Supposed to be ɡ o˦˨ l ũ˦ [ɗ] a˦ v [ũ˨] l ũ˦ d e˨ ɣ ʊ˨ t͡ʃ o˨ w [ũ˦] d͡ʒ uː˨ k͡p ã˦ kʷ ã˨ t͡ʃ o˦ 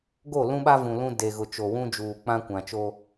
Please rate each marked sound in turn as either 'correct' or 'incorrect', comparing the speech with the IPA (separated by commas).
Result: incorrect, correct, correct